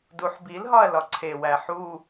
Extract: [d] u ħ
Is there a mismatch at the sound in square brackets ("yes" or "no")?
no